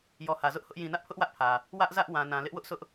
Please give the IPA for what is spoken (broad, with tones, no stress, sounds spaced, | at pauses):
j ɔ˨ h ä˨ z ʊ˦ ʔ h ʊ˦ ʔ j ĩ˨ n ä˦ ʔ pʰ ʊ˦ ʔ w ä˦ ʔ pʰ ä˨ | w ä˦ ʔ z ä˦ ʔ w ã˨ n ã˨ l ɪ˦ ʔ w ʊ˦ ʔ s ʊ˦ ʔ